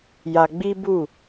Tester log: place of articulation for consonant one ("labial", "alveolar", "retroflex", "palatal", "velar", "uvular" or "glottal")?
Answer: palatal